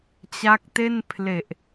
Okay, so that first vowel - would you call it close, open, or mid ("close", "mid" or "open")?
open